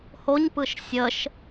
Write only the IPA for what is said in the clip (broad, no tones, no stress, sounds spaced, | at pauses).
h o ɲ p ɯ ʃ sʲ ə ʃ